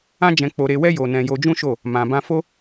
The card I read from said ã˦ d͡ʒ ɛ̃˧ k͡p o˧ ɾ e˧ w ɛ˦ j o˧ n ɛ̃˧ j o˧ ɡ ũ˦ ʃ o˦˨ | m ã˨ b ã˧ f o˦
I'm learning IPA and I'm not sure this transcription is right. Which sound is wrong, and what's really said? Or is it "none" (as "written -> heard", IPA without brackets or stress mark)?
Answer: ɡ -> d͡ʒ